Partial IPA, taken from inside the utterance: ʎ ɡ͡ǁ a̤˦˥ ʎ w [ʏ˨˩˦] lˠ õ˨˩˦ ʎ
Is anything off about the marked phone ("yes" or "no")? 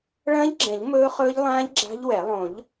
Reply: yes